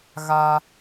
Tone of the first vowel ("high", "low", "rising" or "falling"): high